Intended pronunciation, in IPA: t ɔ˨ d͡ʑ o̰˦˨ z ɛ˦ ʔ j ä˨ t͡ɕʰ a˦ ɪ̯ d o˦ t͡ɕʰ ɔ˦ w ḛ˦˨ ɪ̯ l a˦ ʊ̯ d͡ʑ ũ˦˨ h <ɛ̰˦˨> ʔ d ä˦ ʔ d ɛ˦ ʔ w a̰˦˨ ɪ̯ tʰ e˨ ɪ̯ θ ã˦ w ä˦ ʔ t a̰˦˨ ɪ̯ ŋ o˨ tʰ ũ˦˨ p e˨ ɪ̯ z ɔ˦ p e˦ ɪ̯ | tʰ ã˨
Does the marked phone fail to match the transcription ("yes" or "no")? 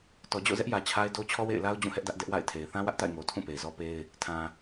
yes